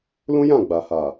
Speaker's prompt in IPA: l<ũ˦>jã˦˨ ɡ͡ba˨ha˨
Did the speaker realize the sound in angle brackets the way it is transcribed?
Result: yes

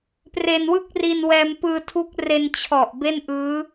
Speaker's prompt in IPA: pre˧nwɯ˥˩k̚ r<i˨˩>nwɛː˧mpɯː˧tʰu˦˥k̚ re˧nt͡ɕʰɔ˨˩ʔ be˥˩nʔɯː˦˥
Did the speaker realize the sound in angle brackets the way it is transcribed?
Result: no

